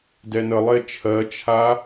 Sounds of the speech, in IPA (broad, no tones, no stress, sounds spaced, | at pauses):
d ɛ n ə lˠ e t͡ʃʰ ɜ t͡ʃʰ a